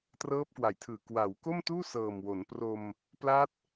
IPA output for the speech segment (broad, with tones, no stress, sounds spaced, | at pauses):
t r ɤː˦˥ p̚ k w a˨˩ j tʰ ɯː˨˩ k w a˩˦ w k o˥˩ m t uː˥˩ s ɤː˨˩ m w o˩˦ n p r o˧ m | p l a˦˥ t̚